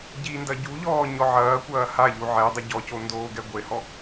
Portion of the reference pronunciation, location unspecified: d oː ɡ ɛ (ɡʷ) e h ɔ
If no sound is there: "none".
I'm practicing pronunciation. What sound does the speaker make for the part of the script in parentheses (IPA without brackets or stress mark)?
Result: ɡʷ